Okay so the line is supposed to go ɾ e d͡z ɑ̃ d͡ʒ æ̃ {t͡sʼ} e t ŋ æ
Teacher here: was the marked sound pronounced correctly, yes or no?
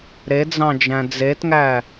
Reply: no